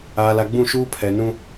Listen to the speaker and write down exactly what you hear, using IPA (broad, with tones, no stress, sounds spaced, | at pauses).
aː˨ l a˨ ɡ͡b ũ˦˨ ʃ uː˦ pʰ ɛ˨ n ũ˦